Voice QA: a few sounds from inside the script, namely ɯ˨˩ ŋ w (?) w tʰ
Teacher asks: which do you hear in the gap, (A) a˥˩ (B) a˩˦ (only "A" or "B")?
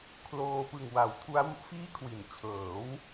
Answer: B